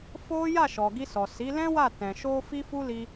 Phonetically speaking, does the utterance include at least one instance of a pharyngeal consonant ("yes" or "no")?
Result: no